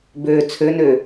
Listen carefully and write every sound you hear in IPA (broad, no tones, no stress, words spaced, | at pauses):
bø t͡sʰønø